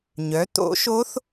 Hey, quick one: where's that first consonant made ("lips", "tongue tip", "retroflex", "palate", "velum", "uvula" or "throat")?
palate